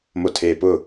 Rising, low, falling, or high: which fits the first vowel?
low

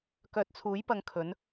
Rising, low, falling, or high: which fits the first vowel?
low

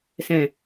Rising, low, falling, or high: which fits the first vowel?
low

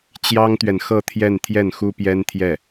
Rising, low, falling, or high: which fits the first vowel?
high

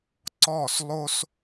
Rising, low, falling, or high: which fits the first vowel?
falling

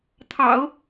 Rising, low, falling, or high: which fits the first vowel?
low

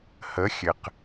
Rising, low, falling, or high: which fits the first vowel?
rising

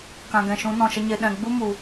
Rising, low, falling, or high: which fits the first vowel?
low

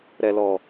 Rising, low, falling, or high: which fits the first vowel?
low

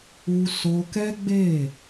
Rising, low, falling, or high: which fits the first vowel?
high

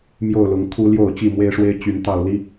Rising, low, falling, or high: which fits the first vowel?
falling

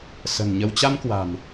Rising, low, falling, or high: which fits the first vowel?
low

